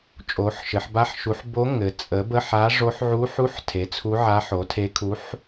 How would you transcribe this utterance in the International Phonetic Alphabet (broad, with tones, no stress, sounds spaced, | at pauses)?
t͡ʃʼ o˩˥ ħ ʃ ɘ˩˥ ħ b a˧˥ ħ ʃ u˩˥ ħ b o˧˥ ŋ ɘ˩˥ t͡sʼ ə˩˥ b ə˧˥˧ ħ a˧˥ ʐ o˧˥ ħ ʕ u˧˥ ħ u˧˥˧ ħ tʰ e˩˥ t͡sʰ u˧˥ ʕ a˧˥ ħ o˩˥ tʰ e˧˥ kʰ u˧˥ ħ